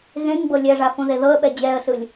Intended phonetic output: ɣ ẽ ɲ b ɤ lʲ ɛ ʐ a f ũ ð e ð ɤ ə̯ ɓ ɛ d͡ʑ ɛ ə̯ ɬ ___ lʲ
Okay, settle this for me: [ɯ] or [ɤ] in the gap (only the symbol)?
ɯ